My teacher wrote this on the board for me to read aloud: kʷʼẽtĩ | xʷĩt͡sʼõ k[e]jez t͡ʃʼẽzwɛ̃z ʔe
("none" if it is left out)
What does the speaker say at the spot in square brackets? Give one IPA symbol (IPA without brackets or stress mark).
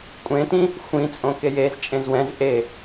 e